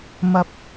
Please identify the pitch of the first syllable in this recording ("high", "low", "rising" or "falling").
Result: low